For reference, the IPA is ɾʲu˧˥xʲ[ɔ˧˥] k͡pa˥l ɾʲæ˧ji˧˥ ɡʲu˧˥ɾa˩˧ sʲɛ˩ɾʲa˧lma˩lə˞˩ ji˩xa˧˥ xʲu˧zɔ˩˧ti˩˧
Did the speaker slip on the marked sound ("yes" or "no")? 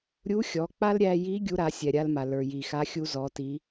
yes